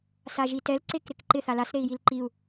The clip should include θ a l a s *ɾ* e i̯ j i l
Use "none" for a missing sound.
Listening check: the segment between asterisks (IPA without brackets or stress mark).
ɾ